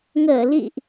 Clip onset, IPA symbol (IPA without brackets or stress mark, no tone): ŋ